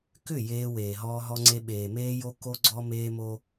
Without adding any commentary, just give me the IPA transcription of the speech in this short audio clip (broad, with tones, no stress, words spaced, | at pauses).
kʏ˦˨ jeː˦weː˨ɦɔː˦ ɦɔ˦ŋ͡ǀe˦ ɓeː˨meː˦jo˦ ko˦ɡ͡ǀɔ˦ meː˦mo˦